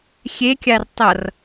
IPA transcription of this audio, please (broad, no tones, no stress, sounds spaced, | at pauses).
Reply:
xʲ e kʲ a r tˤ ʌ r